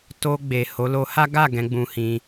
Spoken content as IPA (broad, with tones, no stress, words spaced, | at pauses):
to˧ ɡ͡be˨ho˨˦ lo˧ha˦ ɡa˦˨ ɡɛ̃˨˦ɡ͡bũ˧hĩ˧